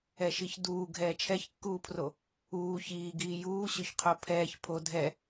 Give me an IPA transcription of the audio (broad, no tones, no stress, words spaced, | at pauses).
ɛʃiçduː ɡʱɛːt͡ʃʰɛçkːuːpʰro | uː çiːɡiː juːɕɵçqʰo pʰɛːç pʰo dʱɛ